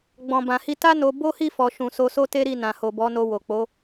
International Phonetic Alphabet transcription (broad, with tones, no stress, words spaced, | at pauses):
ɡ͡bɔ̃˨bã˨hi˧ ta˦no˧ bo˦hi˦˨fɔ˨ʃũ˨ so˧so˦te˦ɾi˦˨ nã˨ho˨bɔ˨˦no˧ wo˨k͡po˨˦